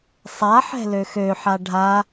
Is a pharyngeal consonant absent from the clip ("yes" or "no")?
no